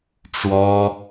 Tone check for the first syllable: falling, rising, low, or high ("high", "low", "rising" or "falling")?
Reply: high